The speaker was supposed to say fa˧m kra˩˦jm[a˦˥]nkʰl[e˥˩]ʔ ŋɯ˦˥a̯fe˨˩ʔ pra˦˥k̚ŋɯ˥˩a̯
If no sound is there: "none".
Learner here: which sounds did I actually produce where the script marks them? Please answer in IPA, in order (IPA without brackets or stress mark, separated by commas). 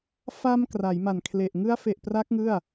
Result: a˨˩, e˨˩